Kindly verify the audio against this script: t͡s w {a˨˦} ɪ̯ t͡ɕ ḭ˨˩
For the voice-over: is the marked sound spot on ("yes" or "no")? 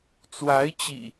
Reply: yes